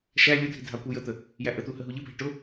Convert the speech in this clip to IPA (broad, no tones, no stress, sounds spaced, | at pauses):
ʃ æ lʲ ʊ dʱ i dʱ ɑ kʷ i j ə t̪ ə | j æ ʔ ə t̪ u h ə ɦ u ʎ ə bʱ æ ʈ ʊ